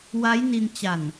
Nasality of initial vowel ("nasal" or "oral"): oral